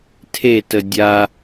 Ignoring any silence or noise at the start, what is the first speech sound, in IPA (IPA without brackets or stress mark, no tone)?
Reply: tʰ